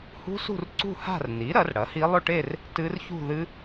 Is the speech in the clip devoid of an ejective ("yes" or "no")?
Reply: yes